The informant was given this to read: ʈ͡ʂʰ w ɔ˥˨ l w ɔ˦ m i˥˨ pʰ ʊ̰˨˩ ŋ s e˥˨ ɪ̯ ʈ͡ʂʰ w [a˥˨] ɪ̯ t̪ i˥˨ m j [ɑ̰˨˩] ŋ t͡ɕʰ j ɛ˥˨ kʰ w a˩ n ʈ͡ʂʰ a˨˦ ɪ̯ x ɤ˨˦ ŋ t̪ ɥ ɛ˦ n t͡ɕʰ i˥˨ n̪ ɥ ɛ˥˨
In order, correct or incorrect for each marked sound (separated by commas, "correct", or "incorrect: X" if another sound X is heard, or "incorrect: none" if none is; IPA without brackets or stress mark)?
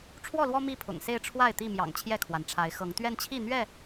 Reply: correct, correct